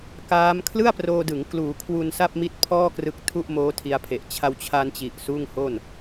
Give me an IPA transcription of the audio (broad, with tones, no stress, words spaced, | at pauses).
kaː˦˥m kʰlɯ˥˩a̯proː˧dɯ˩˦ŋ kluː˩˦kʰwu˧n sa˥˩p̚mi˦˥t̚pʰɔː˥˩ krɯ˦˥k̚ tʰu˥˩ʔmoː˦˥tʰi˧a̯pʰe˨˩ʔ t͡ɕʰa˧wt͡ɕʰa˧nt͡ɕi˨˩ʔ suː˥˩ŋho˥˩n